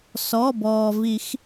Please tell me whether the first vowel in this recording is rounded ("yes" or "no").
yes